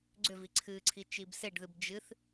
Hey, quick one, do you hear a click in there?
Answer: yes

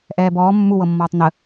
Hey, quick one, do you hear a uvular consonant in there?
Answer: no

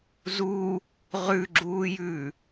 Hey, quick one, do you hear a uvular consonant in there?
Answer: yes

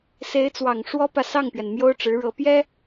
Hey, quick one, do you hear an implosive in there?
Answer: no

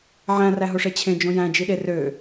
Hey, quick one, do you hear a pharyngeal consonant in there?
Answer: yes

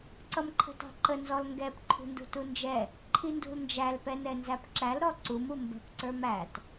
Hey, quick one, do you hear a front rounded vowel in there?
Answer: no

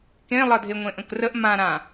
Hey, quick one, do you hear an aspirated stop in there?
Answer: no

